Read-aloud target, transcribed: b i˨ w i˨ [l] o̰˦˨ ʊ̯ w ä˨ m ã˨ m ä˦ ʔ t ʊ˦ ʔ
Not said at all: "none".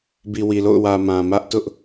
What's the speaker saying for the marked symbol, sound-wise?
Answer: l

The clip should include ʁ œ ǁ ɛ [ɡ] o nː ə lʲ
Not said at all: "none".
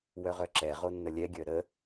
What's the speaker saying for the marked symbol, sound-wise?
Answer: ʁ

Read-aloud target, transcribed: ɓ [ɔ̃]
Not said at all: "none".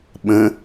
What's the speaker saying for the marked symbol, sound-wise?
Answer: ə̃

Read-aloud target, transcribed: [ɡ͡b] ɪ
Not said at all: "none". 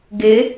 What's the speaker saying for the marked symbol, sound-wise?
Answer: ɡ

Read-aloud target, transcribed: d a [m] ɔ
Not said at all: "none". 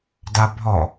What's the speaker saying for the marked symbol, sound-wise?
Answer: bʱ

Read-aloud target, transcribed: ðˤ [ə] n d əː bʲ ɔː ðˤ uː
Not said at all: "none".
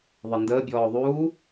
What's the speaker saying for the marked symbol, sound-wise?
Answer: ə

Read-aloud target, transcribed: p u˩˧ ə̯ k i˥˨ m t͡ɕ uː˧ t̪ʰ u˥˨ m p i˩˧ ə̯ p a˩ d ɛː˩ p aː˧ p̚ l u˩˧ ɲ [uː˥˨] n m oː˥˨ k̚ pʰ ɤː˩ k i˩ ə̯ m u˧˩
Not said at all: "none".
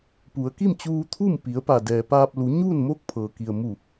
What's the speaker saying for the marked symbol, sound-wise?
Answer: uː˥˨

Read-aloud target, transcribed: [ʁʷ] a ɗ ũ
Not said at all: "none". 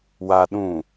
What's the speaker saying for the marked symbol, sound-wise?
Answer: w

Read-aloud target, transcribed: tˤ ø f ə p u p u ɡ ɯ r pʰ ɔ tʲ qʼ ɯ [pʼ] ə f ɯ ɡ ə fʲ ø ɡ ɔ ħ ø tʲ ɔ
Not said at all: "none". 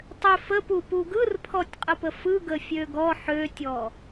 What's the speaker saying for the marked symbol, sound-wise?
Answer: p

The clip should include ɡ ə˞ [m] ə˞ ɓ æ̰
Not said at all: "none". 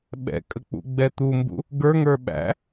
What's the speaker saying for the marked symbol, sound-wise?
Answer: ŋ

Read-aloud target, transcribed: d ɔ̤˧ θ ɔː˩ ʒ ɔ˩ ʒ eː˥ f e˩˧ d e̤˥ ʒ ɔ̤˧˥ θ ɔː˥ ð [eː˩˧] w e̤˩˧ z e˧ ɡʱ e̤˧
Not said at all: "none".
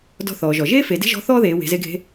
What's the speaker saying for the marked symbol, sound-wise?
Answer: eː˩˧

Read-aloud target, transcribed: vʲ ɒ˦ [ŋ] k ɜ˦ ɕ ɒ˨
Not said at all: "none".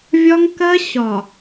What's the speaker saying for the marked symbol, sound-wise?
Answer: ŋ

